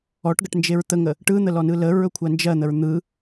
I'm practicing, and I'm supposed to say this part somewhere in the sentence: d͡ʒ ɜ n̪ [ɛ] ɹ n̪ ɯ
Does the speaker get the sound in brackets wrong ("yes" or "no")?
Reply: yes